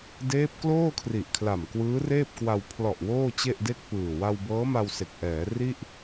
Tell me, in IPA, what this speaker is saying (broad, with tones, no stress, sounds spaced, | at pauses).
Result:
d eː˦˥ p̚ k l oː˥˩ kʰ r i˨˩ ʔ kʰ l a˨˩ m k w ɯː˦˥ r eː˥˩ p̚ k w a˧ w pʰ l ɔ˨˩ ʔ w oː˥˩ t͡ɕ e˥˩ ʔ d e˥˩ k̚ p ɯː˨˩ w a˧ w b ɤː˦˥ m a˧ w s e˨˩ k̚ ʔ ɛː˩˦ r i˥˩ ʔ